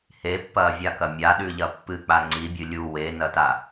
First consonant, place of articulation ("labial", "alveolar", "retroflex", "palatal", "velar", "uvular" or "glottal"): glottal